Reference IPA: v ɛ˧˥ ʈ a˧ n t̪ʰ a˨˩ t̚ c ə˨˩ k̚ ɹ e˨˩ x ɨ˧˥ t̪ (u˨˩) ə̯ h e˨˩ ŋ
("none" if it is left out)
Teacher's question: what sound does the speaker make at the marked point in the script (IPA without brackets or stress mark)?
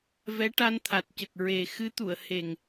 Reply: u˨˩˨